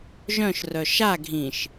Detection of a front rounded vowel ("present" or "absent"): present